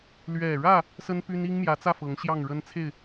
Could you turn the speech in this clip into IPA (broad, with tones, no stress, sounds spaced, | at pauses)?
l ɥ ɛ˨˩ ɻ ä˥˨ | s ə˦ n p y˦ n i˦ ŋ m j ä˨˦ t͡s ä˥˨ f ɤ˨˦ ŋ ɕ j ɑ˥˨ ŋ ɻ ə˦ n t͡sʰ e˥˨ ɪ̯